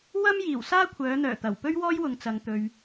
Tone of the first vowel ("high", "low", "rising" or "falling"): high